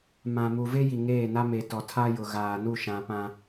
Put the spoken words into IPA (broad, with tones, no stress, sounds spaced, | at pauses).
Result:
m ã˨ m u˨ v e˦ j i˨ ŋ eː˦˨ n a˦ m e˨ t ɔ˨ tʰ a˦ j ʊ˨ ɣ aː˨ n u˦˨ ʃ ã˨ p ã˦